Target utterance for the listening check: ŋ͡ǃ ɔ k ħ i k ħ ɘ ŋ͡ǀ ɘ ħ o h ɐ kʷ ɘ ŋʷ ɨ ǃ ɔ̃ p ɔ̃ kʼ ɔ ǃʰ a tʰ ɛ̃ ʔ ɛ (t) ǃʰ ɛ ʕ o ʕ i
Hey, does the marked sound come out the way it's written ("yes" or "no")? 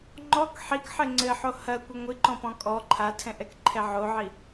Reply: no